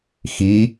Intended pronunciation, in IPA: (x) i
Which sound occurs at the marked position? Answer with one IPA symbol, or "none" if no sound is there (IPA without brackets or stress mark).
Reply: x